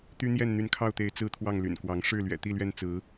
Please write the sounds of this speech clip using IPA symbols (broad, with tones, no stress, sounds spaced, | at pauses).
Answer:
t̪ y˦ n̪ j ɛ˥˨ n n̪ y˨˦ n kʰ ɑ˥˨ ʊ̯ t̪ e˨˦ ɪ̯ t͡s ɹ̩˦ t̪ʰ w ɑ˥˨ ŋ l y̰˨˩ n k w ɑ˨˦ ŋ ʂ ɻ̩˥˨ l ɥ ɛ̰˨˩ t̪ i˥˨ l ɥ ɛ˥˨ n t͡s ɹ̩˨˦